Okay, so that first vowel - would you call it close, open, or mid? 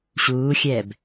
close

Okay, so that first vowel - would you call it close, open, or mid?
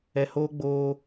mid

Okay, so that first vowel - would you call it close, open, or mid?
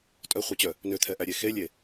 mid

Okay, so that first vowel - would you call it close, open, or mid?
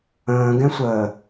mid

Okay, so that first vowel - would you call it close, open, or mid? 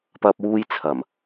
open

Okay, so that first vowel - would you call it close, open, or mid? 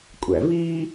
open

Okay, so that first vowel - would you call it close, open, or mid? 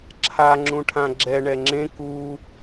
open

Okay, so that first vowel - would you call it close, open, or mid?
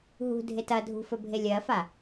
close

